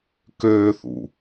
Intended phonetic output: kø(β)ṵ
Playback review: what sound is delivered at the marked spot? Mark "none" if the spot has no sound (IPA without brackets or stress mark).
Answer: θ